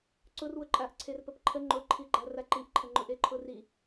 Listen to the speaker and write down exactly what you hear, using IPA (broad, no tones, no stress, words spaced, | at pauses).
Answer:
ǀʊrwʊǃʼaʔǀʰer pəpǃʰə ŋ͡ǃʊǃʰiɡ͡ǃa raǃiʔǃʰəŋ͡ǃʊ ʔeǃʰʊri